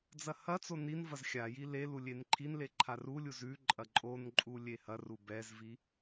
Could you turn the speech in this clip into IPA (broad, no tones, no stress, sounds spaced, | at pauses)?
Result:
d͡z ɐ h ɐ t͡s o n i n v ɐ z xʲ a j i l e l u lʲ e n ǃʰ i n l e ǃʰ a r u lʲ u z ʉ ǃʼ ɐ ǃʼ o n ǃʼ u lʲ e h ɐ r u b ɛ z v i